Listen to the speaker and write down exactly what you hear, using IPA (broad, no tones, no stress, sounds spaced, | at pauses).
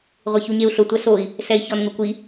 ʁʷ ɪ ç u ɲ e u̯ ɬ ʊ tʷ ɛ s o i̯ | s ɛ i̯ ç ɔ n ŋ ʊ kʷ i